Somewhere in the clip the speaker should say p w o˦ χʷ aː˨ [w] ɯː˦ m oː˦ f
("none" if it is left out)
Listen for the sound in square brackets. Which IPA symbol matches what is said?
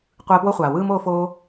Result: w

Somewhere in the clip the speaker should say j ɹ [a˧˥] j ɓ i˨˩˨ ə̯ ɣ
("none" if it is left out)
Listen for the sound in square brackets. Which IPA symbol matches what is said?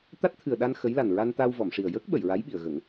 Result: a˧˥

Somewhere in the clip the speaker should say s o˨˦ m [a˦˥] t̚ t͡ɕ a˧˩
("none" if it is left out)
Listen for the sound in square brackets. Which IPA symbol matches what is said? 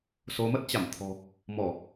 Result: ə˦˥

